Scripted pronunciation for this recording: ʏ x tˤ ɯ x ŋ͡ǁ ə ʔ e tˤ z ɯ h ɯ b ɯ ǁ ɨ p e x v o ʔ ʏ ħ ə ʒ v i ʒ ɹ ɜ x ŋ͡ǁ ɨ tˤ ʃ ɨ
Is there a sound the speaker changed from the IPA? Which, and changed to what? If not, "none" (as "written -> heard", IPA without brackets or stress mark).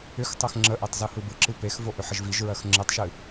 none